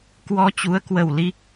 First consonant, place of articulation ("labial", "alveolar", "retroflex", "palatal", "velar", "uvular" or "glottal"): velar